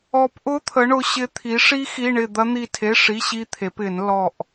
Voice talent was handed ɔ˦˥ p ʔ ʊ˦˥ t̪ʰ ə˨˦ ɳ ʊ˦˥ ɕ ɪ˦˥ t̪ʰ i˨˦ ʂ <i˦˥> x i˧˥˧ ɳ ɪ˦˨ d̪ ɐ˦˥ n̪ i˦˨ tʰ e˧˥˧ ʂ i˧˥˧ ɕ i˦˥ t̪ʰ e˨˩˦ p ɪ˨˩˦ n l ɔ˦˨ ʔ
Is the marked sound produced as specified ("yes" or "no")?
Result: yes